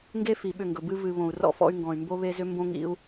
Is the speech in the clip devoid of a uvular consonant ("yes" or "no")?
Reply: yes